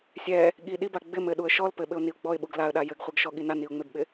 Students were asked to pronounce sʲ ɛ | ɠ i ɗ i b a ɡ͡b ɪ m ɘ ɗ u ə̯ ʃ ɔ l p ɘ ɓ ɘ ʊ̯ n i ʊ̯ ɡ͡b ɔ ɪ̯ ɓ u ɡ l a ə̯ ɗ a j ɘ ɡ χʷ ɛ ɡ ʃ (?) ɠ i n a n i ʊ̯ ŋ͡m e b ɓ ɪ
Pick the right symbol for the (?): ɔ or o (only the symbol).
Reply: ɔ